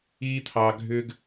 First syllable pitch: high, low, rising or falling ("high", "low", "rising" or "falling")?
high